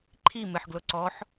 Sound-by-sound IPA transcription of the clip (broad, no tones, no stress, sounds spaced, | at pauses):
ǃʰ i m ɪ ħ ɡ l ʊ ǀ ɔ ħ